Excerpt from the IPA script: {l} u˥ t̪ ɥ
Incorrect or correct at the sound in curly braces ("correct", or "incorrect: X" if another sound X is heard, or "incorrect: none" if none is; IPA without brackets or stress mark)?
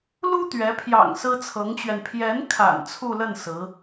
correct